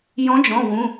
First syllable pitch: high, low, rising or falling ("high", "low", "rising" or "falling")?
rising